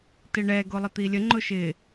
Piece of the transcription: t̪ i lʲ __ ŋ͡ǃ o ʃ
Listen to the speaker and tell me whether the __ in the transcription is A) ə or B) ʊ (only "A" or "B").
A